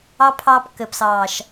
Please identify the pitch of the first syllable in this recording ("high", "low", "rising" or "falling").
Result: high